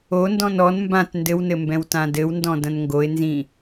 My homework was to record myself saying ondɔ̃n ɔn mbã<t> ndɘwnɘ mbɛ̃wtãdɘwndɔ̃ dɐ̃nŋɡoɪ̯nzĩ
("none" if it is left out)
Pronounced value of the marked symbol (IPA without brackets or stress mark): t